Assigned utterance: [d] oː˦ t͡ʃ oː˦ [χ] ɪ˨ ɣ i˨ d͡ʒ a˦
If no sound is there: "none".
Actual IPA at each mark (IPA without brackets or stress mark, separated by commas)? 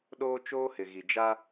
ɗ, h